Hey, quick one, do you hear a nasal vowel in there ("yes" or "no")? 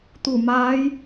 no